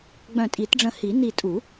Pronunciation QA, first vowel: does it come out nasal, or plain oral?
nasal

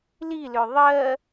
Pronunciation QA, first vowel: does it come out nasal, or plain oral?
oral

